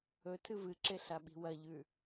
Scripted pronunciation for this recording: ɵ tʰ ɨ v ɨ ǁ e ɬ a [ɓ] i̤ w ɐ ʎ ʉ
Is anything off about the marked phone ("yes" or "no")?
no